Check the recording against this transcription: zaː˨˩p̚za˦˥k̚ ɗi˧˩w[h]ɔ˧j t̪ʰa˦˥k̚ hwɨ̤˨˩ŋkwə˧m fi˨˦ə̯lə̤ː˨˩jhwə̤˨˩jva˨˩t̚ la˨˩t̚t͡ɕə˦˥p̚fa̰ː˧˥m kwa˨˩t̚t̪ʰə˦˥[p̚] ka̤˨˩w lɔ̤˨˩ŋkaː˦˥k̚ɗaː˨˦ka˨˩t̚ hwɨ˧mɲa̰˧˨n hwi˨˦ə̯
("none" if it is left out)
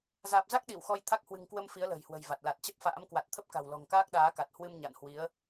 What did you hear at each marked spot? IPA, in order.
x, p̚

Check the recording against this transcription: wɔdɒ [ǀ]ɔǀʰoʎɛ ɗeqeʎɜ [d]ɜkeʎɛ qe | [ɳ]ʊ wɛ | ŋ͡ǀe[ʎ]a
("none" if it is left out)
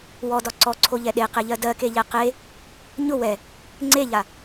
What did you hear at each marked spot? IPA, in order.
ǀ, d, ɲ, ʎ

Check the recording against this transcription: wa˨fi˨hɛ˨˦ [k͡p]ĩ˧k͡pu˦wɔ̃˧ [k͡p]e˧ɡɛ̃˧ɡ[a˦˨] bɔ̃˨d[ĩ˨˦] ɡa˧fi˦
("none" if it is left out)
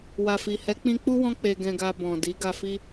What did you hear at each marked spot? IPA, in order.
k͡p, k͡p, a˧, i˨˦

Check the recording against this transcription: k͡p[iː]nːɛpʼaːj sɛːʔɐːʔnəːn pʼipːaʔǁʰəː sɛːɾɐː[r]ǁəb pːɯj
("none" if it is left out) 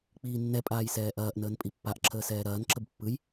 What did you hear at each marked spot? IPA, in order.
iː, n

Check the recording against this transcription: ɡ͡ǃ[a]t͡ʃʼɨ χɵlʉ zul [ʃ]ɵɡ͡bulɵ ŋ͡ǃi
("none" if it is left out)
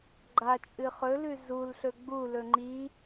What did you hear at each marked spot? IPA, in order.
a, ɬ

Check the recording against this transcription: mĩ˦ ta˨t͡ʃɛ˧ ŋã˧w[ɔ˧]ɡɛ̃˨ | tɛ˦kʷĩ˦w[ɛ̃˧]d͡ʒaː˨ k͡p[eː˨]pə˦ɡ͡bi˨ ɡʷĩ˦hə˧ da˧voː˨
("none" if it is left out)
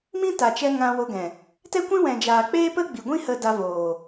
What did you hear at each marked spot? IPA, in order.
o˧, ɛ̃˨, eː˦

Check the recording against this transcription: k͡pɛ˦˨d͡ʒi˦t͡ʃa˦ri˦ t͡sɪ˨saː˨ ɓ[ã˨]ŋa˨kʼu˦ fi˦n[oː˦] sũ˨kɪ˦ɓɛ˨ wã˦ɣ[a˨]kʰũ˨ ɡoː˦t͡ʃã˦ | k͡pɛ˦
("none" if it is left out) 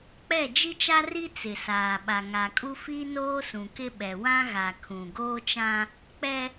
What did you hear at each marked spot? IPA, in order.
a˨, oː˦, a˨

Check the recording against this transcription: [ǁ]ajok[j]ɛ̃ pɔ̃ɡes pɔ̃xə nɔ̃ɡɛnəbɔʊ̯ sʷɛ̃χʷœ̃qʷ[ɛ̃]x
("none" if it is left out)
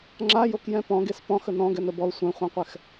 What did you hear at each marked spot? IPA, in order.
ŋ͡ǁ, j, ɛ

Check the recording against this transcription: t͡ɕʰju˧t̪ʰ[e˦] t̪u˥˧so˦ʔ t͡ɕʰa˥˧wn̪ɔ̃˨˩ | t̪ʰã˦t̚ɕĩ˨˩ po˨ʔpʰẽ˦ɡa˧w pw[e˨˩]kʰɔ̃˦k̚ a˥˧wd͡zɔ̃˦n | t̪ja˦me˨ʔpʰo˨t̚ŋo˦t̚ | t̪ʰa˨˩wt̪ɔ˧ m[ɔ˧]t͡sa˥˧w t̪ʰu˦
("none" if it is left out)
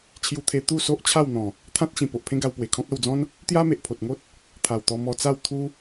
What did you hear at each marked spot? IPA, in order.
e˧, e˨˩, ɔ˧

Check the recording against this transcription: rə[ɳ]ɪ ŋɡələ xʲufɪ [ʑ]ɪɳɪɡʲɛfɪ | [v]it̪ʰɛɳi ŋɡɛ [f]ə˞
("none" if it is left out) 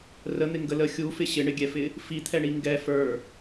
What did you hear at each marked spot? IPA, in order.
n̪, ɕ, f, f

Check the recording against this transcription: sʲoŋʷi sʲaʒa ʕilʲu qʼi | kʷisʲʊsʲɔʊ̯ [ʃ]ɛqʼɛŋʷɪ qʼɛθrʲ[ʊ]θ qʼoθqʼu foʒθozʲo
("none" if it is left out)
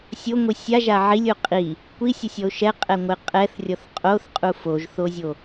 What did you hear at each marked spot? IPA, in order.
ʃ, ɔ

